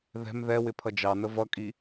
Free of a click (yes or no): yes